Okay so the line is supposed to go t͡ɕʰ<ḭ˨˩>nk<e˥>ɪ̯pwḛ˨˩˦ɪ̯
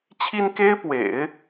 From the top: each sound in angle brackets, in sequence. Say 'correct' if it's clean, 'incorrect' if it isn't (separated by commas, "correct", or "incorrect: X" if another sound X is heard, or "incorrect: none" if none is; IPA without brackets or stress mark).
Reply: incorrect: i˥, correct